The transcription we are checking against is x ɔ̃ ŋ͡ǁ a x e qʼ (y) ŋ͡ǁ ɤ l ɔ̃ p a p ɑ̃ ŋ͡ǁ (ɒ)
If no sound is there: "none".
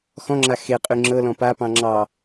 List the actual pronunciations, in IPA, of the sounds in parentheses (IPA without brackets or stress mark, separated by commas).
y, ɑ